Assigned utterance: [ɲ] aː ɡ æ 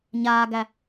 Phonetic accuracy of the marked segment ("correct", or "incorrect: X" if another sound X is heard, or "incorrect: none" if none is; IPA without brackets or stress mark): correct